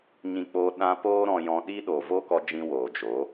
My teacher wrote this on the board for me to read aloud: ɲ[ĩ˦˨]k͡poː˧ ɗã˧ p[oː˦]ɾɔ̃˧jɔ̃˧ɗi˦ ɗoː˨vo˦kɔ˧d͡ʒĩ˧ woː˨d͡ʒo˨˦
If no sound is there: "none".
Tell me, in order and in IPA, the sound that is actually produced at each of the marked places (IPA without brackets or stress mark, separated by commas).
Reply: ĩ˧, oː˦